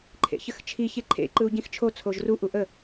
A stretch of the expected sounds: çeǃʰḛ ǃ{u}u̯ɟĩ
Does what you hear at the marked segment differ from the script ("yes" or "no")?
yes